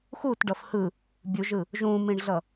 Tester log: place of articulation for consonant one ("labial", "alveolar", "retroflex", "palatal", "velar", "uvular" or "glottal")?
velar